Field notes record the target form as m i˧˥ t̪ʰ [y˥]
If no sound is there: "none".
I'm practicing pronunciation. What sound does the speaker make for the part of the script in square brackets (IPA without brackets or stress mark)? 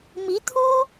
u˥